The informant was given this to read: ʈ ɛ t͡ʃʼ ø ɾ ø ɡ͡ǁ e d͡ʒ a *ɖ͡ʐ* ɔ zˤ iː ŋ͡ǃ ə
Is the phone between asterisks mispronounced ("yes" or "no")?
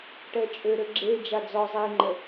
yes